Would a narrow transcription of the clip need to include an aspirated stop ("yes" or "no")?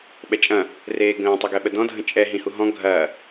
no